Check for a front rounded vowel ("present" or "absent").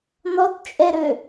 present